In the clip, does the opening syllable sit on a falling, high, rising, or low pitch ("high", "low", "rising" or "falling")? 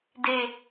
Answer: low